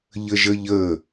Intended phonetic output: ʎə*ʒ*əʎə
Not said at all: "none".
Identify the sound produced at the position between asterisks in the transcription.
ʒ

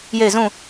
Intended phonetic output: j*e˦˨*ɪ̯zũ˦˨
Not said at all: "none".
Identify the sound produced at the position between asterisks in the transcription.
e˦˨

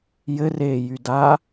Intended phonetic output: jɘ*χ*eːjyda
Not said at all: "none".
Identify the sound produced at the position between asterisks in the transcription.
r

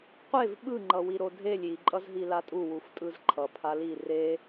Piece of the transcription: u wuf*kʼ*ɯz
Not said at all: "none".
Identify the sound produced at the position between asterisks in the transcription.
tʼ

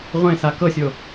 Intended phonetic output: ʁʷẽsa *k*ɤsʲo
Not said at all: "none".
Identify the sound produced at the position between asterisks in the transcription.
k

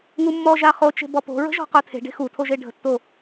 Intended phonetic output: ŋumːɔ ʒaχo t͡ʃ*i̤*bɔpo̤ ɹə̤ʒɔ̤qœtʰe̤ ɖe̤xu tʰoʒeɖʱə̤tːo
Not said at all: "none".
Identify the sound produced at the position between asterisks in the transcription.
e̤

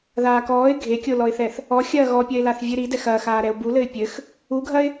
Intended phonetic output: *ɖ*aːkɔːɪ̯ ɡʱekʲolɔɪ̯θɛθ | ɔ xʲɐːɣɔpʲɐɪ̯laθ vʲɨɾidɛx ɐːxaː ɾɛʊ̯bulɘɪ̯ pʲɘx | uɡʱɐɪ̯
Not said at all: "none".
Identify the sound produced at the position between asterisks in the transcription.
ð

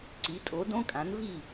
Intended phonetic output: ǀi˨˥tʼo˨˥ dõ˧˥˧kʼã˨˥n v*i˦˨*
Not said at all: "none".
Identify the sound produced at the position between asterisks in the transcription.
i˦˨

